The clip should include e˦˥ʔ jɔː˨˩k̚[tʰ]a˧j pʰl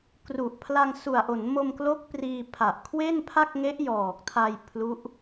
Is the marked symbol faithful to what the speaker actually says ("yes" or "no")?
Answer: yes